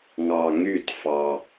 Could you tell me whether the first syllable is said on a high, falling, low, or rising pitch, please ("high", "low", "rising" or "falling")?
low